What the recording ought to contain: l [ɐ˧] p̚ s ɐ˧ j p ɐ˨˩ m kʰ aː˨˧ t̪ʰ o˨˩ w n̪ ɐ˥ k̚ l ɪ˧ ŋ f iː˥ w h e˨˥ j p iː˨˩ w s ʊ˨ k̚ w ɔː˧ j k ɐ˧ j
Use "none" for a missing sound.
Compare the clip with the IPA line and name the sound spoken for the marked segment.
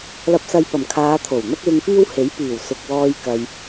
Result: ɐ˧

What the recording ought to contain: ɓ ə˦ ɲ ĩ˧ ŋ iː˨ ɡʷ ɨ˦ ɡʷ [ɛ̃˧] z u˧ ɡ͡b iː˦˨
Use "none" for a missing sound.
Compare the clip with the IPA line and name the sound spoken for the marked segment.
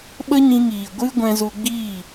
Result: ɛ̃˧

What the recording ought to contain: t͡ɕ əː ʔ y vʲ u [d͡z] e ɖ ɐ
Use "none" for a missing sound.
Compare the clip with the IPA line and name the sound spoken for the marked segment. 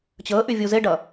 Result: z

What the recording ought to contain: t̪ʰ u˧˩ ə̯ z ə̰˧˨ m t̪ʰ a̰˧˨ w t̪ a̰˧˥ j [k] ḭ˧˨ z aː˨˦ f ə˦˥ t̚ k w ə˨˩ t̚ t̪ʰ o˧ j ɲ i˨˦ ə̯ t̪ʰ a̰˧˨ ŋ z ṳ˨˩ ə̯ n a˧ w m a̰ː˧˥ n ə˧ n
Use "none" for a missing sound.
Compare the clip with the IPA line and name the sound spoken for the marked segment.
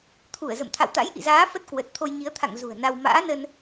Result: ʔ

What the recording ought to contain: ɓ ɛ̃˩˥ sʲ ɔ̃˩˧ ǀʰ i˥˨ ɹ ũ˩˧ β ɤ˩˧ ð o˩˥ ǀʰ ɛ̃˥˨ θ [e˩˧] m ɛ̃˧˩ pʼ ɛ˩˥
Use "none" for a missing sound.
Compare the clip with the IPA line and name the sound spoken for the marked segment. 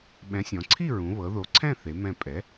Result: e˩˧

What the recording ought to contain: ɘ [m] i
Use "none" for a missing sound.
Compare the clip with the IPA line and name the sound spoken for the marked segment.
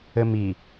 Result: m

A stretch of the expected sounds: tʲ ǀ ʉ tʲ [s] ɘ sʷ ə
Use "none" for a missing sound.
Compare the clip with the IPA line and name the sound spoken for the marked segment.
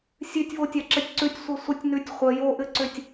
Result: sʷ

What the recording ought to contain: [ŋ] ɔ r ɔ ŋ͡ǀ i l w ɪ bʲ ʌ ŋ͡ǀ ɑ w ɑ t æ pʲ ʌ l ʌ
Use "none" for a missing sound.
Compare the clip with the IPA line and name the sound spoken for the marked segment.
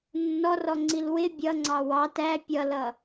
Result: nː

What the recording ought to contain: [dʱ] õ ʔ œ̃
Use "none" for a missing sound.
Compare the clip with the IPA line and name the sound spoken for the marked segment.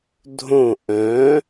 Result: dʱ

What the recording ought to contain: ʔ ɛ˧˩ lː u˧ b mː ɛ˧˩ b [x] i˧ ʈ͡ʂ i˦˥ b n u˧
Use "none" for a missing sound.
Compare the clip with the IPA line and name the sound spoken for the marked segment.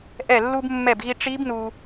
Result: ɣ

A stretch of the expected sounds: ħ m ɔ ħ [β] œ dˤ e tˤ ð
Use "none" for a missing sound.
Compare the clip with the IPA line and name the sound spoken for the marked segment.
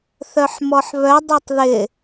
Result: β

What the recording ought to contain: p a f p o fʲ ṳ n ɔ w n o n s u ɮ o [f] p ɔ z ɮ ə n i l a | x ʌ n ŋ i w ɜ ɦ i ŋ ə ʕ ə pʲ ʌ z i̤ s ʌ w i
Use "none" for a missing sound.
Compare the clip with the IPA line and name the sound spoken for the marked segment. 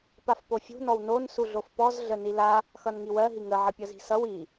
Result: f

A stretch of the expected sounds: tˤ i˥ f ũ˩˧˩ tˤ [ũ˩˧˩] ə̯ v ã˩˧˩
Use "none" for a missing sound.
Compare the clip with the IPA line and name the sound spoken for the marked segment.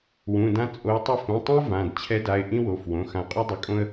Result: ũ˥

